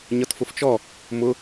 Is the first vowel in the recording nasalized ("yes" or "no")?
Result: no